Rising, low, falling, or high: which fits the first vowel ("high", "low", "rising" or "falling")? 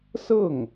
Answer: falling